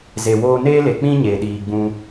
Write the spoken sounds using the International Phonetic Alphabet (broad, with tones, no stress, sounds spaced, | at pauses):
z e˨ w oː˧ n eː˦ l e˨ k͡p ĩ˦ ɲ e˨ ɗ iː˨ ɡ͡b ũ˧